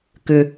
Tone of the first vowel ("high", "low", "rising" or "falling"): low